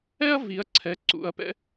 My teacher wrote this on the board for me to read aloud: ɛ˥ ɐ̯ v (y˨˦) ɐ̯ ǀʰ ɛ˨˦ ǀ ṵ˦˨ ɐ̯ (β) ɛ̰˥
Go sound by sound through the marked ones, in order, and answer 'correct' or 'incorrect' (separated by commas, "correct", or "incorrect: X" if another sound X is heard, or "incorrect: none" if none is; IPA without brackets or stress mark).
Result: incorrect: i˨˦, incorrect: p